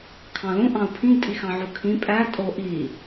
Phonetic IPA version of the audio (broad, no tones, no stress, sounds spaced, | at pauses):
kʰ ɑ̃ l ũ ʔ ɑ̃ u̯ pʰ ĩ ɡ tʼ i x ɑ̃ ʕ u kʰ ĩ pʼ æ tʼ o ʔ i